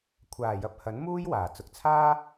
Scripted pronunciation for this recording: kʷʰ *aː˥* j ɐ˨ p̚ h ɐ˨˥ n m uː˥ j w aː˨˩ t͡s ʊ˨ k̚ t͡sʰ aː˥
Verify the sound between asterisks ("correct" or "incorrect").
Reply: incorrect